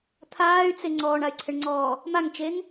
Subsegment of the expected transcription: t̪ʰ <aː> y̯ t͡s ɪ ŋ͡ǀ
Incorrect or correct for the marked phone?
correct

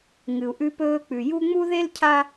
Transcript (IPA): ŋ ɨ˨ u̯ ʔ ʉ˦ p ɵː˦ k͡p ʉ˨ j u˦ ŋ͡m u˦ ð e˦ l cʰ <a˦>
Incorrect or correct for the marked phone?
correct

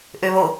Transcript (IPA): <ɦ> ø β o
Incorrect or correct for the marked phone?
incorrect: ʔ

